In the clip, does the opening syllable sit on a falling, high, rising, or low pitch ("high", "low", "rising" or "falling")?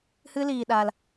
high